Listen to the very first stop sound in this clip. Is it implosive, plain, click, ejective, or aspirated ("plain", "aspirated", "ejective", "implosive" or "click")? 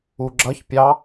click